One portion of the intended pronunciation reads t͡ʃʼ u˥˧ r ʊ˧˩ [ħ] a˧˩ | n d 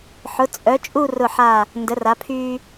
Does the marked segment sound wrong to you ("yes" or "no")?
no